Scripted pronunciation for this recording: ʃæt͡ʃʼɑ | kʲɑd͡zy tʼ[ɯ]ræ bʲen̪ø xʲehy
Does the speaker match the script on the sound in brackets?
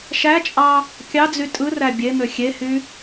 yes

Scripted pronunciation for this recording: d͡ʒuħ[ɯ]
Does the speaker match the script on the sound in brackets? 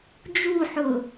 no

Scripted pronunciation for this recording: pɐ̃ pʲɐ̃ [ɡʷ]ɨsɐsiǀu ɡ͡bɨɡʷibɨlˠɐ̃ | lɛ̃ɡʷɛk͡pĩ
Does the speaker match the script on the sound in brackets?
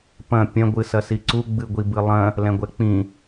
yes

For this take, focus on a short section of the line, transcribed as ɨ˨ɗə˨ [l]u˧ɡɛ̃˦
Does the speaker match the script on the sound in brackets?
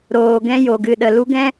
yes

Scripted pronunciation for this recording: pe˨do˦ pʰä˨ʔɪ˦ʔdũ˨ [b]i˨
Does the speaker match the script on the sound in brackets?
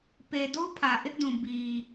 yes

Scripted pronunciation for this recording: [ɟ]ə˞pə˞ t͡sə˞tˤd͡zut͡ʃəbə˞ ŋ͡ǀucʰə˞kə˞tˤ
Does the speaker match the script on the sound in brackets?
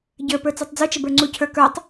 yes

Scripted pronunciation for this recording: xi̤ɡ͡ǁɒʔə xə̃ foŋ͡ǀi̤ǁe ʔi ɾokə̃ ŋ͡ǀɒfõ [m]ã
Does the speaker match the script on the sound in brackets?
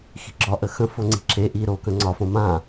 yes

